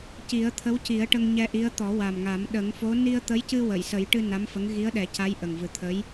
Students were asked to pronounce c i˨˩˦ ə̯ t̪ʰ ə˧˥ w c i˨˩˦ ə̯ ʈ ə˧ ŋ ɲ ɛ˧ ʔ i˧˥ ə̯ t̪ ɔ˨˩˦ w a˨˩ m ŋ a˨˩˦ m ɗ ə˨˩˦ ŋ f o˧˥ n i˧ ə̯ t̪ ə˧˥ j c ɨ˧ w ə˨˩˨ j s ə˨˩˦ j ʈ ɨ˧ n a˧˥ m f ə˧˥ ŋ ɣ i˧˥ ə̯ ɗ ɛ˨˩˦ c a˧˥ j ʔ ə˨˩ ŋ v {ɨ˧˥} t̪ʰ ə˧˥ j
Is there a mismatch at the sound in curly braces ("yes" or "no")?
yes